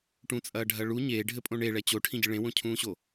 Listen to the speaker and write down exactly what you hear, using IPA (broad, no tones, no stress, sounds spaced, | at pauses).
ʈ ũ t͡sʼ ɐː ɖʱ ɐ ɭ u ɲ eː ɖʱ ɘ pʼ õ ɳ e ɭ ɛ t͡ɕ o ʈʰ ĩ ɟ ɨ ɭ ẽ w õ cʰ ũː ɕ o